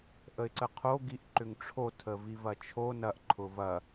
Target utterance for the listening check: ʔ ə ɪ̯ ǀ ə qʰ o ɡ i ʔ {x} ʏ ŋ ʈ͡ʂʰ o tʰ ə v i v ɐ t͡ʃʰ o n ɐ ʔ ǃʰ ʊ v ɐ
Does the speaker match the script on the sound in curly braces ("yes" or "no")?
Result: no